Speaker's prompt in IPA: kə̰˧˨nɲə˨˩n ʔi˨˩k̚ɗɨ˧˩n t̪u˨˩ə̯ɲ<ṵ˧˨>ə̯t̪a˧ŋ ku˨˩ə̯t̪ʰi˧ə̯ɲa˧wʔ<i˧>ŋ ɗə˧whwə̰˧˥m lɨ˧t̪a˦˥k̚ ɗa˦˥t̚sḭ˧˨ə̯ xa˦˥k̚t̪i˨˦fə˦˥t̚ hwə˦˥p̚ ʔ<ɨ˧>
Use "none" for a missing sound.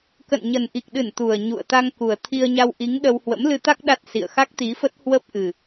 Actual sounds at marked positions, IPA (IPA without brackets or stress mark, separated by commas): ṵ˧˨, i˨˦, ɨ˨˩